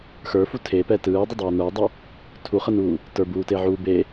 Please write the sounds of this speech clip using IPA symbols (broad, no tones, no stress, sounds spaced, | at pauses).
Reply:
x ə˞ f u tʰ e p ɛ t ɯː dˤ ə dˤ uː n ə˞ dˤ a | tʰ u χ ə n uː | t ə˞ b uː t e ʕ uː b e